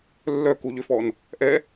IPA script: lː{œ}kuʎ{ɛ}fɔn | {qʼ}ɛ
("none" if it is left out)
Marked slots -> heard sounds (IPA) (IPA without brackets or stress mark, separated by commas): œ, ʏ, ʔ